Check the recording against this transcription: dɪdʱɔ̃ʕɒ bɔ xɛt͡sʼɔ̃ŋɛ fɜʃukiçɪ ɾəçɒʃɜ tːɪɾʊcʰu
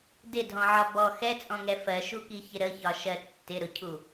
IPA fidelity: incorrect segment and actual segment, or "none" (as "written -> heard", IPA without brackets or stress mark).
none